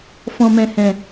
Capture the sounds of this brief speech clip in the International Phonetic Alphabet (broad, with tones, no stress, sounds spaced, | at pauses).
f ɔ̃˨ m ɛ̃˨ h ɛ̃˨